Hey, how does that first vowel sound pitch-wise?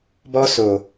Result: high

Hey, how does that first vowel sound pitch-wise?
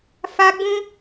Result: high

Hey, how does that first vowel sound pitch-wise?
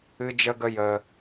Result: high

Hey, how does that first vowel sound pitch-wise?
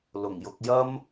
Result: low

